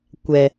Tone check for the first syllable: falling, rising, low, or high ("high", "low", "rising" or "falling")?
low